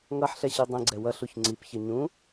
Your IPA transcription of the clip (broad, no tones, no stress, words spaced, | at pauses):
ŋʌħɬɛɕi dˤĩɡ͡ǀɛ wʌɬuç ŋ͡ǀipçʌ ɲũ